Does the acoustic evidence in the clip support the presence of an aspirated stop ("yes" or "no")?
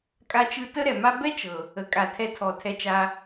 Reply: yes